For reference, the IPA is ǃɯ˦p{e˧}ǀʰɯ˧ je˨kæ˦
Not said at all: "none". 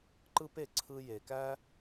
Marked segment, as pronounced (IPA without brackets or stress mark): e˧